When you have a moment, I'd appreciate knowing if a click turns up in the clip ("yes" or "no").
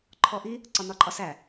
yes